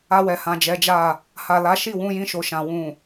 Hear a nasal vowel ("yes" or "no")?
yes